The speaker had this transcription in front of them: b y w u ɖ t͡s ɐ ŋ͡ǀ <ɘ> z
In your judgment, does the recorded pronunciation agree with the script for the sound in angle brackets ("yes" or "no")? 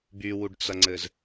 yes